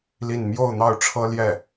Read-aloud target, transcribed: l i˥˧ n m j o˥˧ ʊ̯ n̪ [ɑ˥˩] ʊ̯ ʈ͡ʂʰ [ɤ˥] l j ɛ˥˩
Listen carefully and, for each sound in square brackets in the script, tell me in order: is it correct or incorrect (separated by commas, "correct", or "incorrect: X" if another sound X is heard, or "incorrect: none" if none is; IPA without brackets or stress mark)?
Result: correct, correct